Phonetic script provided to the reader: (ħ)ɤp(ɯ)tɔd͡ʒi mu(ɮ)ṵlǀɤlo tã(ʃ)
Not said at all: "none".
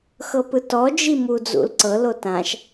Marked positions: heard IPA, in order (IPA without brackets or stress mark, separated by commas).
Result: x, ɯ, d͡z, ʃ